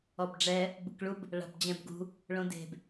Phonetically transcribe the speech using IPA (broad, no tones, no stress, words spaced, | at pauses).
ɔbɖ͡ʐɛ | bɯkɭub | ɭa̤bd͡ʑɛ̃bɡṳ | ɭõde̤b